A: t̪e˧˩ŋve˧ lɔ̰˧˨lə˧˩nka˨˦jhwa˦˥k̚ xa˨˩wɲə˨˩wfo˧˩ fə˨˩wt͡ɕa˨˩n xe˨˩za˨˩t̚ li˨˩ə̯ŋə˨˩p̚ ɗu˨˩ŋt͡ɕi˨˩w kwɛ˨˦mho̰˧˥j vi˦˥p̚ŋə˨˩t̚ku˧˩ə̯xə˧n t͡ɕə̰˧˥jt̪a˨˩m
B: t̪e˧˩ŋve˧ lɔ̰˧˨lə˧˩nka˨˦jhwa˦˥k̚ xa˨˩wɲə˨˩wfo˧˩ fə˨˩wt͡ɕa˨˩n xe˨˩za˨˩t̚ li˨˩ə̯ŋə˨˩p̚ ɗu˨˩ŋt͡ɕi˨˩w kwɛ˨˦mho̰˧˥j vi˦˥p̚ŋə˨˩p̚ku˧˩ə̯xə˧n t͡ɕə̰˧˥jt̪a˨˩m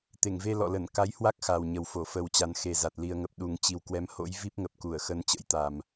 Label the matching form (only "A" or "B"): B